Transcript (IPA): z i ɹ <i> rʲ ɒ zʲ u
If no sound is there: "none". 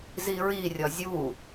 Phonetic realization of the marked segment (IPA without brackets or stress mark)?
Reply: i